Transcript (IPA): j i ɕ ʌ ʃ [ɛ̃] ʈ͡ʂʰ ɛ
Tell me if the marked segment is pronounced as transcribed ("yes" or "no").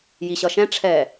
yes